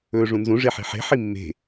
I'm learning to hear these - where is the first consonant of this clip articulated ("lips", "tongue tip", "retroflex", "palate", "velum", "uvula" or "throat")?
retroflex